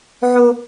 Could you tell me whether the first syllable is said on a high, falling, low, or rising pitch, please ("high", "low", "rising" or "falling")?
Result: high